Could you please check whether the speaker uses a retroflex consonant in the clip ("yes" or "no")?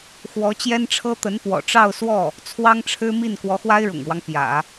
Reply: yes